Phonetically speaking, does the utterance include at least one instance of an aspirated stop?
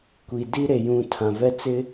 yes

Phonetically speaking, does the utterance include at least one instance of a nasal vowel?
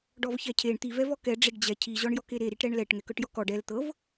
no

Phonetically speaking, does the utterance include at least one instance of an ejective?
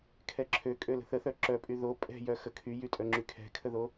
yes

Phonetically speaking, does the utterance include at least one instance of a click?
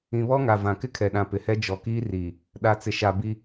no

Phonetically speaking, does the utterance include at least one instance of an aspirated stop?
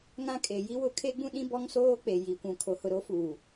yes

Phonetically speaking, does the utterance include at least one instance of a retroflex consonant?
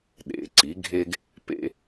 no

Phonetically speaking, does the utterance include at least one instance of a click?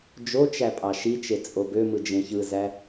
no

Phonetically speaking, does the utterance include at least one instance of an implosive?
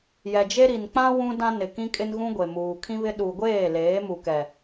yes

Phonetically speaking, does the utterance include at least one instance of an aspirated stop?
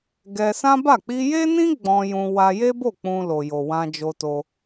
no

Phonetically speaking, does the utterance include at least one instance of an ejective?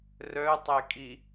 yes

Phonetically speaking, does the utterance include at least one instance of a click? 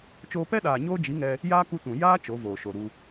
no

